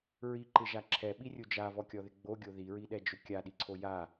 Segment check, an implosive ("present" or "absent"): present